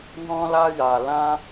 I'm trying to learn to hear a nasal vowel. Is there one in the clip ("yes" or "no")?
yes